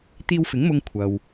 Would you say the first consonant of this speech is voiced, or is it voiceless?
voiceless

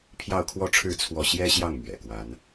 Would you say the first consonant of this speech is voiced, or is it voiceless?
voiceless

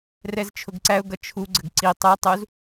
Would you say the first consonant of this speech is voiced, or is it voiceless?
voiced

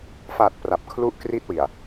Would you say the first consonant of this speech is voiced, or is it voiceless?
voiceless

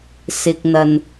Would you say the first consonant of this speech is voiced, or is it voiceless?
voiceless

